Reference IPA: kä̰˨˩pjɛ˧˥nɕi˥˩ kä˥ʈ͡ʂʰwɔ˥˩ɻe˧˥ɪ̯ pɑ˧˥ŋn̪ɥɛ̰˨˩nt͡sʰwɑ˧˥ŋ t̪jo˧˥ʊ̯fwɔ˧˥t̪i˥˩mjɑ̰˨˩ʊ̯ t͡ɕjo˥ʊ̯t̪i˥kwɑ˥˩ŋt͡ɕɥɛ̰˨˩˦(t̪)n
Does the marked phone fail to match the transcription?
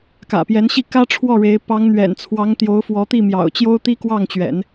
yes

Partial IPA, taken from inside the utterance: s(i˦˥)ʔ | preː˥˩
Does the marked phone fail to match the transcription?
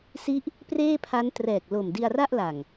no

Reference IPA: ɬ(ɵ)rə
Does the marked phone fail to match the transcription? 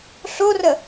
yes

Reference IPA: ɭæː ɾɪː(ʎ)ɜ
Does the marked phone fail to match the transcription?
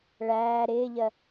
no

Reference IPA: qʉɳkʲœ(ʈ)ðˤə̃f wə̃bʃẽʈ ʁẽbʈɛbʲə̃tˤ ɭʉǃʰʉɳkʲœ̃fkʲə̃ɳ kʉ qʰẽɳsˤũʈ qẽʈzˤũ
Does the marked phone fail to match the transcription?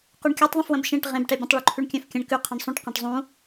yes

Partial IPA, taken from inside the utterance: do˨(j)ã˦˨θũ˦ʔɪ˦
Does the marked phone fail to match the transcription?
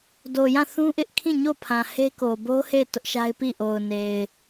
no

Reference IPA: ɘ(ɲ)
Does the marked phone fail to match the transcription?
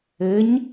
no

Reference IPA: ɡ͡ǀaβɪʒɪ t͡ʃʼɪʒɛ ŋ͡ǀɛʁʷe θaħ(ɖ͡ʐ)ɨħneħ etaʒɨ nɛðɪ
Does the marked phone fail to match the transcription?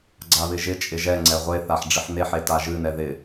no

